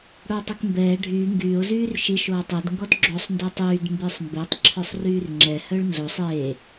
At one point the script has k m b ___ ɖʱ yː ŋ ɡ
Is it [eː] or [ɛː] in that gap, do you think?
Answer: ɛː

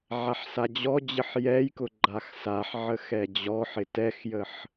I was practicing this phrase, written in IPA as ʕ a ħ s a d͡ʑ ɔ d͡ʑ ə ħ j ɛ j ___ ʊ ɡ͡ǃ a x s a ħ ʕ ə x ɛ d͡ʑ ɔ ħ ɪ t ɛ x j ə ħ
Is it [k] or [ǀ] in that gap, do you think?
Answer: k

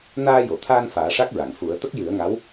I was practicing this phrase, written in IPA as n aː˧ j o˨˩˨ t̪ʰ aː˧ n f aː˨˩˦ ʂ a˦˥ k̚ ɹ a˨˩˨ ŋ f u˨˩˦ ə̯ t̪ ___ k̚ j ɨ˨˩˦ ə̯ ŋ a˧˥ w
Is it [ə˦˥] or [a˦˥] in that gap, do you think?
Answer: ə˦˥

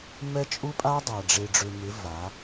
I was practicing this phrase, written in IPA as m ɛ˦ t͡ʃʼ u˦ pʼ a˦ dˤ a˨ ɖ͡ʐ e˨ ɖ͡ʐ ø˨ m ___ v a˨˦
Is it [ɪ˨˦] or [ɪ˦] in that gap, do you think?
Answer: ɪ˨˦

